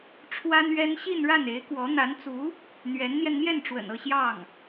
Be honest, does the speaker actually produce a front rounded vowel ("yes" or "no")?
no